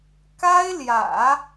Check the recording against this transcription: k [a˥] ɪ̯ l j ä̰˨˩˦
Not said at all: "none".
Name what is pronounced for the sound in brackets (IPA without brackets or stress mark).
a˥